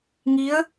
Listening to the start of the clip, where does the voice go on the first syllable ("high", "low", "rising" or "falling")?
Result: rising